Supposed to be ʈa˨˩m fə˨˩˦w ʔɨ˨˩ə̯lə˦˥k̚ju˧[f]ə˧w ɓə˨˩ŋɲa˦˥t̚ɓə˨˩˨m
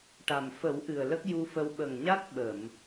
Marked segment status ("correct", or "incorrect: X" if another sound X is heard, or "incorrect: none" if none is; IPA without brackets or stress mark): correct